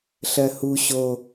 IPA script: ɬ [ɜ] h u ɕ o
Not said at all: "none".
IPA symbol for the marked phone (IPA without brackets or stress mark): ɜ